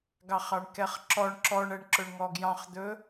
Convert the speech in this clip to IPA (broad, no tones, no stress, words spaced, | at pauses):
ɡɑχɑɳkɛχǁɔɳ ǁɔɳɛɳǁɵɳ ŋɔɡjɑ̃χd̪ɵ